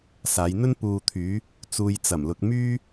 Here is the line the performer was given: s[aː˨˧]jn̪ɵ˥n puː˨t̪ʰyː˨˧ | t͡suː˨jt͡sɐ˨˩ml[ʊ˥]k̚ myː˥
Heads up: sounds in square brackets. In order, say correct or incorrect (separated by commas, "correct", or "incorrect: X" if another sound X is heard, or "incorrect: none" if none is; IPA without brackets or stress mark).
correct, incorrect: ʊ˨